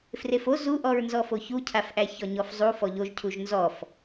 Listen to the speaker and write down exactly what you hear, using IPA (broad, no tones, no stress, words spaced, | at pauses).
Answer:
frefo zuʔɔɹnzɔfo çucʰafʔæ çɔɲɔfzˤu fɔʎoʒcʰuʒ nzɔf